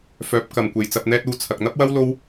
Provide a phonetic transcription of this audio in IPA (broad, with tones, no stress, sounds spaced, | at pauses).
f œː˨˥ p̚ k ɐ˨˩ m kʷ e˨˩ j t͡s ɐ˧ p̚ n̪ ɛː˥ t̚ uː˧ t͡sʰ ɐ˨ k̚ n̪ ɐ˥ p̚ w ɐ˥ w l o˥ w